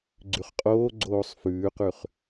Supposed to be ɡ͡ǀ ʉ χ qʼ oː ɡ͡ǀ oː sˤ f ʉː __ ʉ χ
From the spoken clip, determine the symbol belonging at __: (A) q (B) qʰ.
A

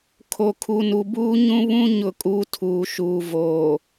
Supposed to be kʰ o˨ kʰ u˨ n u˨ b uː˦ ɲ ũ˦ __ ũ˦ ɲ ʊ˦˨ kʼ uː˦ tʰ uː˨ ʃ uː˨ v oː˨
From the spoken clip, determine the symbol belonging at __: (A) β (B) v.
A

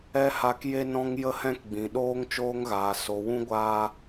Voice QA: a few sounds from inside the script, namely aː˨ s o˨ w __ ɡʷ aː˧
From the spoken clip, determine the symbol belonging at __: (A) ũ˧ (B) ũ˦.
B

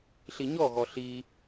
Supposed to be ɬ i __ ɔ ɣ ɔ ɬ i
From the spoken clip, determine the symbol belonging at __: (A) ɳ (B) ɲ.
B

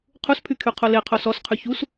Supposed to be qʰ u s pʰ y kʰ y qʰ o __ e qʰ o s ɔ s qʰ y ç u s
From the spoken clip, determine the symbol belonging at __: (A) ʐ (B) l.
B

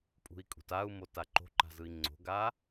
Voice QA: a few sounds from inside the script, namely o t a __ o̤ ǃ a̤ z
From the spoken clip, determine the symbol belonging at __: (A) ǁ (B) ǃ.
B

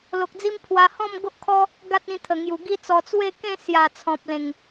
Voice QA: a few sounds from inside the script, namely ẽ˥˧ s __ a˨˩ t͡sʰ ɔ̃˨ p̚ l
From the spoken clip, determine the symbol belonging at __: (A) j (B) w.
A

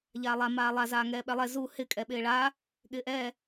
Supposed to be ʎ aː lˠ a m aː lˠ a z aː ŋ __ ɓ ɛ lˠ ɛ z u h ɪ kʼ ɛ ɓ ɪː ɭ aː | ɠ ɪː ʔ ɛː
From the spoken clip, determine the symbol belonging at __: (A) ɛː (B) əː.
A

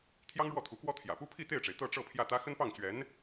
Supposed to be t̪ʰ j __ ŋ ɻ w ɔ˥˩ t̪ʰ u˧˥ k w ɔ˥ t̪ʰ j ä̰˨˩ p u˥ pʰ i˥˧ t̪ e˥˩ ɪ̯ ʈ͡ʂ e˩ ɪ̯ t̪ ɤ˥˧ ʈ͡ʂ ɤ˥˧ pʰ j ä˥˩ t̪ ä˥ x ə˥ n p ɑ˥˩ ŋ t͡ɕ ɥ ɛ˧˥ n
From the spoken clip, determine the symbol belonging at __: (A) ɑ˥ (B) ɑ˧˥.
A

